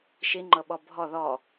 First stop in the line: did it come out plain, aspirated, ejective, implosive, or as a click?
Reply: click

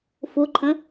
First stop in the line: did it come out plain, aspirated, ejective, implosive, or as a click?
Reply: click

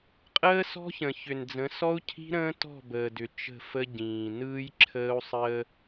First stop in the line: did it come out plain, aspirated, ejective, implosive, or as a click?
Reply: ejective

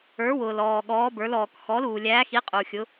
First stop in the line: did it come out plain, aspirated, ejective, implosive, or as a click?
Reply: implosive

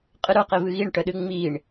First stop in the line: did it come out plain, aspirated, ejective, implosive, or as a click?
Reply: ejective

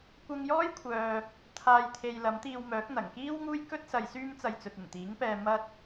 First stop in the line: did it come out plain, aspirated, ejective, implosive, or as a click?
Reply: plain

